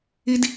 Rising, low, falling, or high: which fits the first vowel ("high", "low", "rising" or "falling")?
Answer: high